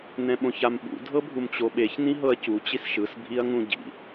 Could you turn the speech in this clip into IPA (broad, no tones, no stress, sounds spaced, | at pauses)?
n ɛ̃ ɓ õ ç a m ɓ ṵ dʱ ɤ bʱ u m t͡ɕ o ɓ e ç n ĩ ɦ ɤ ɐ̯ c u t͡ɕ i s ʃ ɯ s bʱ i ɐ̯ ŋ ũ ɟ ḭ